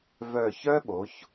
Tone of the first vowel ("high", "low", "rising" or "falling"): low